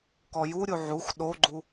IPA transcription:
k ɔ j u ɾʲ u ʕ u x ɗ o ɡ͡ǃ u

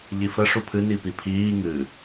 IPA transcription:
ʎ i f ə ʂ u pʰ ɨ n i p i pʰ iː ŋ ɨ

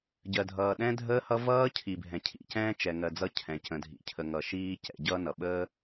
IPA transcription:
ɟ ɜ˨ dʱ ʌː˨ ɗ ɛ̃˦ dʱ əː˦ h ʌ˦ v ʌː˦ cʰ i˨ bʱ ɛ̃˨ cʰ ḭ˨ c ɛ̃ː˦ t͡ʃ ɛ˨ ŋ ɜ˨ d͡z ʌ˦˨ cʰ ɛ̃˨ c ə̃˨ dʱ ḭ˨ cʰ ə˨ ŋ ʌ˨ ʃ iː˦ c ɛ̰˨ ɟ ʌː˦ n ʌ˨ ɓ əː˦

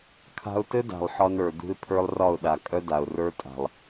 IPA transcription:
kʰ a̤˧ ʊ̯ t ɘ˦ d a̤˨ lˠ ħ ɒ˧ n ə˞˨ d ṳ˦ ɪ̯ pʰ ə˞˦ lˠ r ɒ˦˨ ʊ̯ ɗ a˨ kʼ œ˦ d a˨ ʊ̯ r ə˞˦ tʼ a̤˨ lˠ

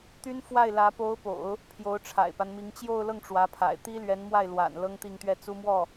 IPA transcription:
t̪ y˥ n f w a˥˩ ɪ̯ l ä˧˥ p o˧˥ ʊ̯ p o̰˨˩˦ ʊ̯ | pʰ j o˧˥ ʊ̯ ʈ͡ʂʰ a̰˨˩ ɪ̯ p a˦ n m i˧˥ ŋ t͡ɕ j o˥˧ ʊ̯ l ɤ˥˩ ŋ ʈ͡ʂ w ä˧˥ pʰ a̰˨˩ ɪ̯ t̪ i˥ l ɥ ɛ˧˥ n m w a˥˩ ɪ̯ l w a̰˨˩ n l ɤ˥ ŋ t̪ i˥˧ ŋ t̪ ɥ ɛ˥˩ t͡s u˥ m w ɔ˥˩

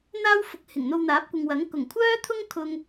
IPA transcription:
n̪ aː˥ w f ʊ˨˥ k̚ h ɪ˨˩ ŋ n̪ o˧ w n̪ aː˨˥ p̚ kʷ ɪ˨ ŋ w ɐ˨˥ ŋ k ʊ˨˩ ŋ kʷʰ œː˥ t̪ʰ ʊ˥ ŋ kʰ ʊ˥ ŋ

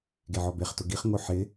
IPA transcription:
ɡ e ʕ ɔ b e χ t ʊ ɡ i χ ŋ o ħ ɪ

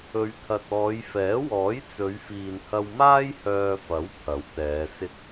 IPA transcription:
ɵ˨˧ ɥ t̪ʰ ɐ˨ t̚ ɔː˨˧ j f ɛː˨˥ w ɔː˨˥ j t͡s ɵ˨˧ ɥ f iː˨ n h ɐ˧ w m aː˥ j h œː˧ f ɐ˨˥ w pʰ ɐ˨˥ w t̪ ɛː˨˧ s ɪ˧ k̚

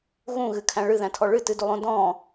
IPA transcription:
ɣ ũ ɣ ɨ kʰ æ̃ ɭ ɨ ð æ̃ tʰ ɔ ɭ ɨ t ɨ d u lˠ õ d ɔ̃

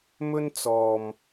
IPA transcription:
m ɵ˥ n t͡s ɔː˨ m

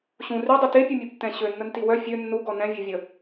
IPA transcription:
ɕ ũ r y dˤ i t e pʲ u mʲ ɛ b tː ɛ̃ ɕ ø nː ə n t i w œ fʲ ø nː u ɡ ɔ n ɛ̃ vʲ e vʲ ə

